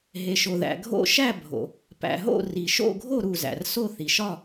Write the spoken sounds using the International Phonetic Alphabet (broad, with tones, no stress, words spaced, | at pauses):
ɦe˨ʃo˨ðæ̰˨ ɡʱo̰˥˧ ʃæ˥˧bʱo̰˨ | pæ̰˨ɦo̰˥˧ ri˨ʃo̰˥˧ɡʱo˥˧ ɾu˥˧zæ̰˨r so˥˧θi˨ʃɒ˥˧